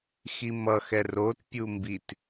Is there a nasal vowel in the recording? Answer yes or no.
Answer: no